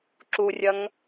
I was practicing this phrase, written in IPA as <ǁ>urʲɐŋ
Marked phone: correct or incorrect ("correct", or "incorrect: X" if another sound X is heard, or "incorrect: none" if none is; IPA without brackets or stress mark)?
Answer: correct